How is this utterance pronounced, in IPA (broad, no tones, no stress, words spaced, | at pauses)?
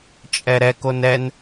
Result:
t͡ʃʼɛɾɛ konɛn